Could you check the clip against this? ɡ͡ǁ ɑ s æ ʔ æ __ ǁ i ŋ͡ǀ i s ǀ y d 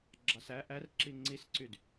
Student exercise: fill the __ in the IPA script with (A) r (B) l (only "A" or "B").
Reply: A